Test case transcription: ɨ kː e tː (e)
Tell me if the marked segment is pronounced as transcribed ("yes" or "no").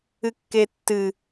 no